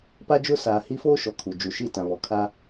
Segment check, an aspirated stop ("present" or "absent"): present